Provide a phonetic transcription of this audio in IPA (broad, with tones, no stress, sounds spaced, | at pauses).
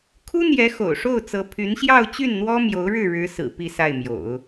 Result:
kʰ u˥ n̪ j ɛ˧˥ x o̰˨˩ ʊ̯ ʂ o˥˩ ʊ̯ t͡s ɤ˧˥ pʰ y˧˥ n ɕ j ɑ˥˧ ʊ̯ t͡ɕ y˥˩ n n̪ w ɔ˥ m j o˧˥ ʊ̯ ɻ ɻ̩˥˩ ɻ ɻ̩˧˥ s ɹ̩˨˩ p i˥˧ s a˥˩ ɪ̯ m j o̰˨˩˦ ʊ̯